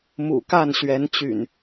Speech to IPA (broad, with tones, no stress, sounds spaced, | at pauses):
m ṵ˨˩ k a˥˨ n ɕ ɥ ɛ˨˦ n t͡ɕ y̰˨˩ n